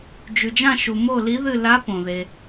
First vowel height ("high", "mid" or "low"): high